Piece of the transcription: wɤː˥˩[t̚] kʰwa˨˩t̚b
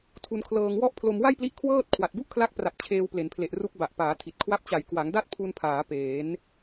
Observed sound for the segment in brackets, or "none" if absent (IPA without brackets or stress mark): t̚